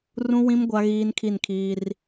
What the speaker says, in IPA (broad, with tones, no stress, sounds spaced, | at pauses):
r ũ˦ w ĩ˦ m ɡʷ a˦ ɣ iː˦ n kʰ i˦˨ n kʰ iː˦ r